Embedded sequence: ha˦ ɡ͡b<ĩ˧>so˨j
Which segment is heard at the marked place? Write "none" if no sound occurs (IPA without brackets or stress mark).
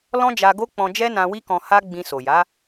ĩ˧